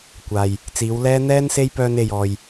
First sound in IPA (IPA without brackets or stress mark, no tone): kʷ